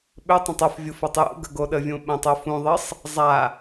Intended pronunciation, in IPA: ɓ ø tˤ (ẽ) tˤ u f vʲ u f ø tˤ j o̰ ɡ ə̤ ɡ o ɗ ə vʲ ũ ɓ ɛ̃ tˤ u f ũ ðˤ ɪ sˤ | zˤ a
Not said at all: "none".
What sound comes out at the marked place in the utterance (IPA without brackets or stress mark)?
ẽ